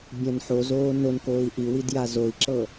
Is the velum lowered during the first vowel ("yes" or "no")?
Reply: yes